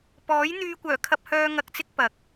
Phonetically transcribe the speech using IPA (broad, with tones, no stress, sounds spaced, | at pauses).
p ɔː˨˥ j n̪ yː˧ kʷ œː˨˩ kʰ ɐ˧ p̚ h œː˧ ŋ ɐ˧ k̚ t͡s ɪ˥ k̚ p ɐ˨ k̚